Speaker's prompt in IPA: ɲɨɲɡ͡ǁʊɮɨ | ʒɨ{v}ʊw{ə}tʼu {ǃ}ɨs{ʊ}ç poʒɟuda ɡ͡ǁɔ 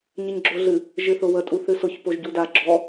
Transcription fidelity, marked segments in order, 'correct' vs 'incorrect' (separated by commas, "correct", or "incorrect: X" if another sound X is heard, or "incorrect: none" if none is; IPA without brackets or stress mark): incorrect: θ, correct, incorrect: θ, correct